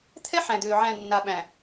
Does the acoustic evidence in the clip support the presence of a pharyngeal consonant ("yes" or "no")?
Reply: yes